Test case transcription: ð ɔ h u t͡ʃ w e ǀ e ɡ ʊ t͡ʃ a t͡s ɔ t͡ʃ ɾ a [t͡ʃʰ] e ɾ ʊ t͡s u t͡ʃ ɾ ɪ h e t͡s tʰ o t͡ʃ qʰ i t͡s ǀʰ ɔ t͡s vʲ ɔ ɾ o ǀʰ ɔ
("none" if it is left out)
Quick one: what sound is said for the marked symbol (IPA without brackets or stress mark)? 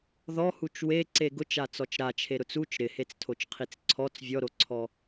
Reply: t͡ʃʰ